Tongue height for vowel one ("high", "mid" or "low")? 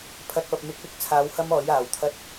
low